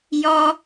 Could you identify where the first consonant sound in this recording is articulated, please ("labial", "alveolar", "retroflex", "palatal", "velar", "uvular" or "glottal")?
palatal